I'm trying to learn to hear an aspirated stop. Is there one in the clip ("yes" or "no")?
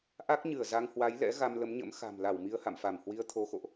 yes